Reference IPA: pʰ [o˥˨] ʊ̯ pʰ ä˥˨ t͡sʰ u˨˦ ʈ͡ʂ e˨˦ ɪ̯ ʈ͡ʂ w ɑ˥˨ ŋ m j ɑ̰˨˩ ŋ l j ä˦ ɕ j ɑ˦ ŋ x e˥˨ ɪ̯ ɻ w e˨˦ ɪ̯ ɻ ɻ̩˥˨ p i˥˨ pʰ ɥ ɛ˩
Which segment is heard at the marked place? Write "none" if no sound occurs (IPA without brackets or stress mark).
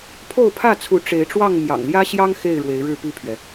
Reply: o˥˨